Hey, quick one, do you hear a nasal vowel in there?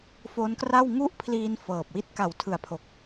no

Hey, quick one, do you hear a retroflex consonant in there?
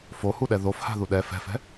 no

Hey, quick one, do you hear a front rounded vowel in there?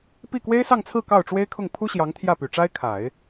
yes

